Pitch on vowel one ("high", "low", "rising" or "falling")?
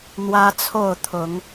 high